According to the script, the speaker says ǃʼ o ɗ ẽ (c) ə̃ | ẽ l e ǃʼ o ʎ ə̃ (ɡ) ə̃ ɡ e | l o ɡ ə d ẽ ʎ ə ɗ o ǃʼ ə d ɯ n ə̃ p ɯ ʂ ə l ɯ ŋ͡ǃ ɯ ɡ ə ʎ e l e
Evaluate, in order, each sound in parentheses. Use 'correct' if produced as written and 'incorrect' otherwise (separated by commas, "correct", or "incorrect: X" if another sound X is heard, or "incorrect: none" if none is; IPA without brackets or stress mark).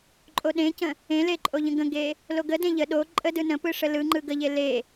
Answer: correct, correct